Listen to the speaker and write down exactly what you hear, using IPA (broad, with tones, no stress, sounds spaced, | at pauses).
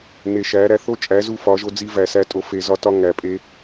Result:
n e˨ ʃ æ˨˦ ɾ æ˧ θ o˦ t͡ʃʼ æ˨˦ z u˦ f ɒ˨˦ ʒ o˦ d͡z i˦ v æ˨ s æ˧ tʼ o˨ f e˨ z ɒ˧ t ɒ˧ ŋ æ˨ pʼ e˧